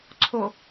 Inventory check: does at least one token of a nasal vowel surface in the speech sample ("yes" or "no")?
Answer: no